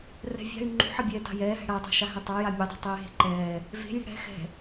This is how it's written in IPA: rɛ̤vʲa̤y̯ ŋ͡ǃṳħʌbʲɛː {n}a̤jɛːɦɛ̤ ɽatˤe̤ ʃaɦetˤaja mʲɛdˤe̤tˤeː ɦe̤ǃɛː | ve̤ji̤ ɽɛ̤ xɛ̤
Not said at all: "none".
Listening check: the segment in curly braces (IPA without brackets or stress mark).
t